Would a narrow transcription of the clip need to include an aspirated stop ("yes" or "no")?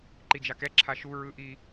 yes